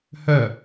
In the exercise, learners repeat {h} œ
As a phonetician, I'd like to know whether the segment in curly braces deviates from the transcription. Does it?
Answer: no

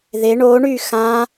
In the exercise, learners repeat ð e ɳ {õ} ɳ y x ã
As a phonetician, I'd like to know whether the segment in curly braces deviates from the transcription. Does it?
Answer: yes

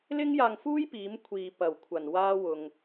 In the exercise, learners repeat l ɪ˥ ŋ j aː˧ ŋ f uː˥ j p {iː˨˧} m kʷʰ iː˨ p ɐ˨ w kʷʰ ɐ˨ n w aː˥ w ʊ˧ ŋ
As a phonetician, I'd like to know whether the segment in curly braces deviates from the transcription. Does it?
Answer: no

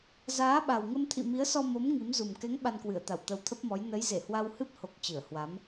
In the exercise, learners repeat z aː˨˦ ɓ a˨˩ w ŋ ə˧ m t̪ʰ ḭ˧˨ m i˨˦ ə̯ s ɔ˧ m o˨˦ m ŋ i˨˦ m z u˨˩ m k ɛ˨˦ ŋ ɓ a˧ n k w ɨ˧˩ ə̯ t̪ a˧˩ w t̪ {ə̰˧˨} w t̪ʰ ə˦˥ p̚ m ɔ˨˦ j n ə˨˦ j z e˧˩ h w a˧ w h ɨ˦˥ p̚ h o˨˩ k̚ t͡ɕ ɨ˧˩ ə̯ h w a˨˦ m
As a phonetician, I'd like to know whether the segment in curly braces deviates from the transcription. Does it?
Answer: yes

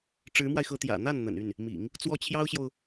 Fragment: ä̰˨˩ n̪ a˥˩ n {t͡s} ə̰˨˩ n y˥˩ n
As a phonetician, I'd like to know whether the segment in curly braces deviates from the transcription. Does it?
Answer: yes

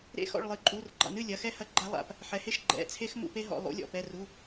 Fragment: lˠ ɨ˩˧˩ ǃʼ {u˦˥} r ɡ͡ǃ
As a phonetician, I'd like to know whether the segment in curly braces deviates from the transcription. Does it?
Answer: yes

